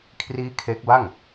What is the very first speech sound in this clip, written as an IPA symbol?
kʰ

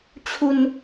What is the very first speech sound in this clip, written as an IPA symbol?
t͡ɕʰ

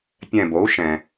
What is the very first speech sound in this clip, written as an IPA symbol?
pʲ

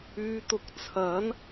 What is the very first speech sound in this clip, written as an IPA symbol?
yː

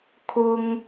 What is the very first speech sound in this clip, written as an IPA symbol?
kʰ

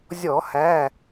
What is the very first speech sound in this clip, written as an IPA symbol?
zʲ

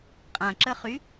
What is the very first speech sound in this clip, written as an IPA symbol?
qʼ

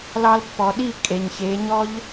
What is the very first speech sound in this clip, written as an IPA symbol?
l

